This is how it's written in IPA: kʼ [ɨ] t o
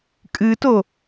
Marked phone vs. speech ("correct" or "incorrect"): correct